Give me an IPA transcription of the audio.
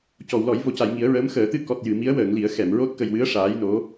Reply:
c ɔ˨˩˨ w l ɔ˨˩˦ j v o˨˩˨ c a˨˩˨ j ŋ i˨˩˦ ə̯ ɹ əː˧˥ m x əː˨˩˦ t̪ ɨ˧ k ɔ˨˩ t̚ j ɨ˨˩˨ m i˧˥ ə̯ w əː˨˩˨ ŋ l i˨˩˦ ə̯ x ɛ˨˩˨ m ɹ o˦˥ t̚ k ə˨˩ j w ɨ˧˥ ə̯ ʂ aː˧˥ j n o˧˥

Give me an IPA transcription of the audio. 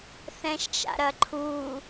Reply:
θ ɛ̃ ʃ t͡ʃ a̰ ɾ ɐ ǃʰ u

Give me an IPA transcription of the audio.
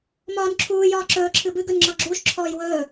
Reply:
m ɒː n ǁʰ uː j ɒː ǁ ɵː ǁʰ ɨ b ɨ ɡ ɵ n ŋ͡ǁ ɒ ɡ͡ǁ uː ʃ ǁʰ ɔː j w ɵː

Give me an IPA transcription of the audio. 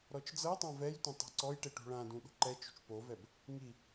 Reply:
ɾ ɔ t͡ʃ d͡z ɤ tˤ ã v ɛ j tʷ ã tˤ ɔ̤ ǀ ɔ j ʈ e ʈ ṳ ɭ ã d ũ ɗ ṳ ǃ ɛ t͡ʃ ṳ t͡ʃ p o v ɛ b | ŋ i

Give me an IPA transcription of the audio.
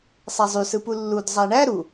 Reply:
sˤ æ zˤ y s ɯ p u lː u d zˤ æ ɳ æ ɾ u

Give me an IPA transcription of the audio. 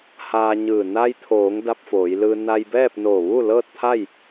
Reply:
h aː˧ ɲ ɯː˧˩ n a˧ j t̪ʰ oː˩˧ ŋ d a˧ p̚ f oː˩˧ j l ɯː˧ n a˧ j b ɛː˥˨ p̚ n oː˧˩ ʋ uː˥˨ l ɤː˥˨ t̚ t̪ʰ a˥˨ j

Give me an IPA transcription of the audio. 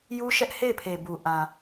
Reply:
j u˦ ʃ ɛ˦ ʔ h e˦˨ ɪ̯ pʰ e˨ b u˨ ʔ ã˨

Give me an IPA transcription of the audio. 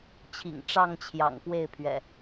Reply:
t͡ɕʰ ḭ˨˩ ŋ ʈ͡ʂ ɑ˥˨ ŋ t͡ɕʰ j ɑ̰˨˩ ŋ p w e˥˨ ɪ̯ pʰ ɥ ɛ̰˨˩

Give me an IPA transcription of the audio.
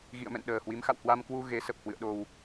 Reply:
ɣ ḭ˧˨ ə̯ m ɛ̰˧˨ n ɗ əː˨˩ h w i˨˦ m x a̰˧˨ w h w a˧ m k w u˧ ɣ e˨˦ s ə˨˩ p̚ h w ɨ̰˧˨ ə̯ ɗ o˨˩ w

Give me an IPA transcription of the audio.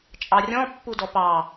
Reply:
t͡ʃʼ ɑ rʲ ɔ̃ pː u d ɔ p ɑ

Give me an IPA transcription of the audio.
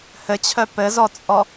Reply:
h ɘ t͡ɕʰ œ p ɘ z ɔ t͡sʼ ɔ

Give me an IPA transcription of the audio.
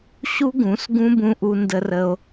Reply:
ɕ u˦ ɡ ũ˨˦ s ɡ ũ˦ b ũ˧ ʔ u˧ n d ə˧ r ə˧ o̯

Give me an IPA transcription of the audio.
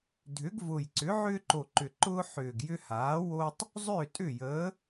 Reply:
dʱ ʏ˩˥ ɡ v ʊ˨˩ j ǀ ʏ˩˥ ʕ ʏː˦ ǃ o˨˩ ǃ ʏ˨˩ ǃ ʊː˦ ħ ʏː˨˩ ɡ j ʏ˦ h aː˩˥ w o˦ tˤ | zˤ ʏː˥˩ tʼ ʏ˥˩ j ə˩˥

